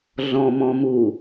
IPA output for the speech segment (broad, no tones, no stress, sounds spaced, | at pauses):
ɮ ɔ̃ m ɔ̃ m u